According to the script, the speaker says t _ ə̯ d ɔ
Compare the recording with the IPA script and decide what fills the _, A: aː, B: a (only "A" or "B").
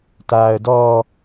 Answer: A